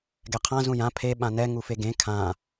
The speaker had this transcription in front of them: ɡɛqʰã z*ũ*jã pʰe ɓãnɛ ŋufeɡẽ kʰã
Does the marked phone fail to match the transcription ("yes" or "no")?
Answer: no